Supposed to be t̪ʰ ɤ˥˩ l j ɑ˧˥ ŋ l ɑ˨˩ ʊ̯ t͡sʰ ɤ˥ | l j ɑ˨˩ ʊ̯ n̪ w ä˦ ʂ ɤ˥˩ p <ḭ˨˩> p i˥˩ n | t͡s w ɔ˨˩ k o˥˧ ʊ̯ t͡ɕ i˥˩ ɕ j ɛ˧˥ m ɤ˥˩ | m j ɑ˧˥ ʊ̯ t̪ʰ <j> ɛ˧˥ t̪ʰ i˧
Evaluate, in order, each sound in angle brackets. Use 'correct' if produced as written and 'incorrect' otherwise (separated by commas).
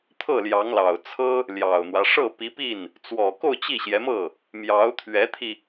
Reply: incorrect, incorrect